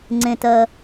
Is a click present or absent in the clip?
present